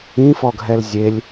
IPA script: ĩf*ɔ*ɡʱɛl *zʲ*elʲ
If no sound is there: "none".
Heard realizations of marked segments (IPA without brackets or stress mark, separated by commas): ɔ, zʲ